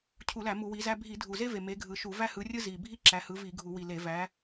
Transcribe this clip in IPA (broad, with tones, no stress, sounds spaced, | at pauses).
cʰ u˧˩˧ l æ˧˩˧ m u˧˩˧ w i˨˦ z æ˥ bʱ i˧˩˧ dʱ u˨˩ z e˥ v e˨˩ m e˨˦ ɡʱ ɯ˨˩ ʃ u˧˩˧ v æ˥ h ɯ˨˦ rʲ ɯ˥ z i˨˩ bʱ i˥ ǁ æ˨˦ h ɯ˨˦ v i˧˩˧ ɡʱ u˧˩˧ w i˨˩ l e˧˩˧ v æ˨˦